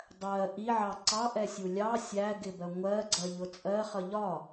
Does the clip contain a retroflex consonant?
no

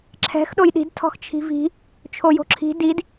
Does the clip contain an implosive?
yes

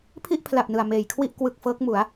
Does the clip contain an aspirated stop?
yes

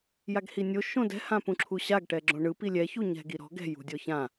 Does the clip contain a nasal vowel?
yes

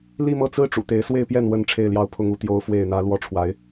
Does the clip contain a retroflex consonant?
yes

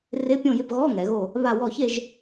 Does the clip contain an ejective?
no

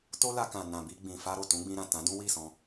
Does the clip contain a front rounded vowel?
no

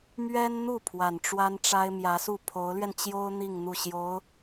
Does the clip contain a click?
no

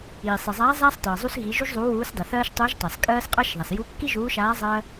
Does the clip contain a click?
no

